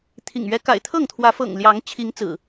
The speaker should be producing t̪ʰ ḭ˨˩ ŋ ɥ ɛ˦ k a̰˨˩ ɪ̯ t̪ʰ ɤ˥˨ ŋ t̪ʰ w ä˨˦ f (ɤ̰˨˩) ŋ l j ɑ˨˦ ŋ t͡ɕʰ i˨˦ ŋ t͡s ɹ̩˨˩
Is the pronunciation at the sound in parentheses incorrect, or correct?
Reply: correct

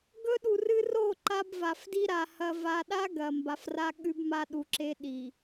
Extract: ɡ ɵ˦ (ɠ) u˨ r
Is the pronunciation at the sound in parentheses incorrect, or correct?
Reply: incorrect: ɗ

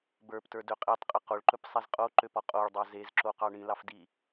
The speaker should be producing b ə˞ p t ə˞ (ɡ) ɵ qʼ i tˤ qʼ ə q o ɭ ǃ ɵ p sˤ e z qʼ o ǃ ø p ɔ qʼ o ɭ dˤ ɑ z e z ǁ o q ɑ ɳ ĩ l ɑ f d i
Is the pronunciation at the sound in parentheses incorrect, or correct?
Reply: incorrect: d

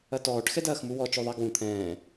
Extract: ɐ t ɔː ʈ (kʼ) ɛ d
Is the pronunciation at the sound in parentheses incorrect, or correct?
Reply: incorrect: x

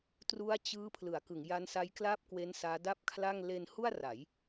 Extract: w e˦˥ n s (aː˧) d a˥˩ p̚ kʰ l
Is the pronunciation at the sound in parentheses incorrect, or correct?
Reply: incorrect: aː˦˥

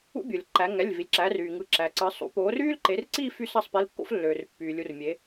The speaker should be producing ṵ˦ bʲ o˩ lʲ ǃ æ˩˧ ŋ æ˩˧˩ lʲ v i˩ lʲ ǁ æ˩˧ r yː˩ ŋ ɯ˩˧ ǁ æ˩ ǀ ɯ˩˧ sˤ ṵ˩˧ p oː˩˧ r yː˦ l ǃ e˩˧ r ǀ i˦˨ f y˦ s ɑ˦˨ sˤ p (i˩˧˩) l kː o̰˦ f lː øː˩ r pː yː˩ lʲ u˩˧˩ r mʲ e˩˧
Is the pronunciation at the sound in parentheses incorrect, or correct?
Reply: correct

